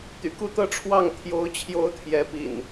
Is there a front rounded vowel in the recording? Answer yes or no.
yes